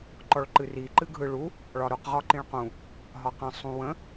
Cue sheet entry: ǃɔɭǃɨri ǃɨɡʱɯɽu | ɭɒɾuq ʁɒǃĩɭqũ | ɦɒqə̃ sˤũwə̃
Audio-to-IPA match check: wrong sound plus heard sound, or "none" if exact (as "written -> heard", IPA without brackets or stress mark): ɽ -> ɭ